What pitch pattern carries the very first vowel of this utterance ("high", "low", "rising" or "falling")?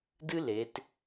high